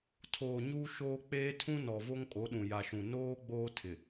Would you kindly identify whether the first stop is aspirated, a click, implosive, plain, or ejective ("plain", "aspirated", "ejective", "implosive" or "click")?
aspirated